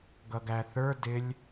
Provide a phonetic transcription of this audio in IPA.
ɡʌɡæθə˞ dɪlʲ

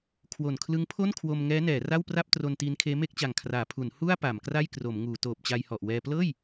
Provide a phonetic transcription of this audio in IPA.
kʰwo˨˩nkʰlɯ˦˥ŋpʰo˥˩n kʰwo˧m ŋɛː˦˥nɛː˩˦ ra˥˩wpra˥˩p̚tro˧n tiː˦˥nkʰeː˦˥ me˥˩k̚t͡ɕa˨˩ŋkʰraː˩˦ pʰu˩˦n hu˥˩a̯ pa˩˦mkra˥˩jkro˩˦mŋuː˩˦ toː˨˩p̚t͡ɕa˧jhɔ˨˩ʔwɛː˧ plɤː˥˩j

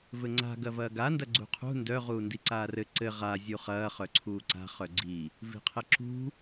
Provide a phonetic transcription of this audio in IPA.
vɘŋ͡ǀa̤ ɡɐvɐːɡa ndɐɡ͡ǀṳqʰṳ ndœ ʁuːndiǀaːrɘ ǀɘ ʁa zʲuχɐː χœǀʰuːǀa̤ χœɡ͡ǀi | vi̤qʰɘǁṳ

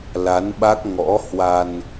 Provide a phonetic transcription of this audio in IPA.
la˨˦nɓa˦˥k̚ ŋɔ̰˧˥hwa˧n

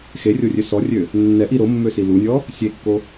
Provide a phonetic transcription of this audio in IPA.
xerʲorʲø sɔrʲø | nːɛʔi ɾomːøsi lunʲɔ | sʲekːo

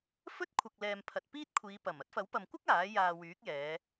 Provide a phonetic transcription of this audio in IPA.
fɵ˥t̚ kʷʰɐ˨k̚lɛː˨m pʰɐ˨t̚piː˥t̚kʷʰiː˨˧ pɐ˨˩m ɐ˨˥t̚fɐ˨˥wpɐ˨mkʷɐ˥k̚ aː˨˥ jaː˨wyː˨˥k̚jɛː˨˧

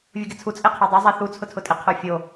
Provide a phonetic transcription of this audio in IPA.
vʲuɡɪt͡sʰu t͡sʼeqʰɛdˤɛ zˤɛθu t͡sʰʊtʰʊtʼɪ qʰofʲo

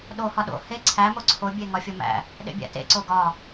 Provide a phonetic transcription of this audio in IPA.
ɗo hɒɗo̰ he ǀʰæ moǀʰo bʲeŋɒfʲomæ̰ | ɗḛbʲæ̰tḛ ǀoɡɒ

